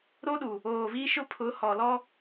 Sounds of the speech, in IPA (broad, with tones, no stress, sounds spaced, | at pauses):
ɾ o˦ ɗ u˨ | oː˨ v iː˦ ʃ ʊ˦ pʰ ʊ˨˦ h ɔ˨ l ɔ˦